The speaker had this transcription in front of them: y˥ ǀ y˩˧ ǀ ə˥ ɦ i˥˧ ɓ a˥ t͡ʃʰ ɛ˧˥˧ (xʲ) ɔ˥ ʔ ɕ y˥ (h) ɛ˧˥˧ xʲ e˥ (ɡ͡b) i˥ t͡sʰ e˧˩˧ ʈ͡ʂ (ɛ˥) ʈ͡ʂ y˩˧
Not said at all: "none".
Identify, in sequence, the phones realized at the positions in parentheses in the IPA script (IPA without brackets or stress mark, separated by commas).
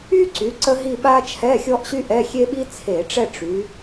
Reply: xʲ, ʔ, ɓ, ɛ˥˧